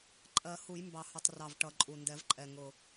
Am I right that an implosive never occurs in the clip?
yes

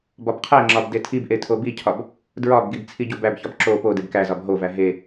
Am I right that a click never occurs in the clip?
no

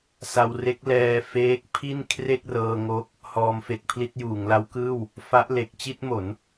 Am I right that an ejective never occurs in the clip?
yes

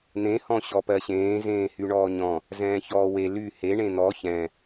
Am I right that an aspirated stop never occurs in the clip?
yes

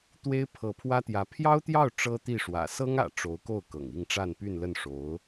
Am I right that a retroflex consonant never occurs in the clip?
no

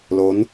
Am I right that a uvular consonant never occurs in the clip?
yes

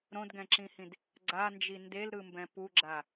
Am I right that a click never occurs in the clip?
no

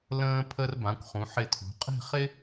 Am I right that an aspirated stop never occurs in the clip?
no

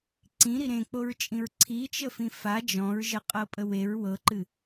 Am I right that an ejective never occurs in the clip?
no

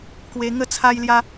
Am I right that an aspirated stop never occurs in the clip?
no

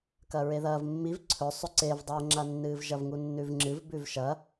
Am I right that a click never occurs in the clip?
no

